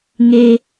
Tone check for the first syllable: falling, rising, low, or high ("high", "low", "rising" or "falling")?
high